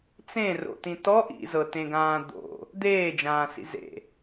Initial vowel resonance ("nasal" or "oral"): nasal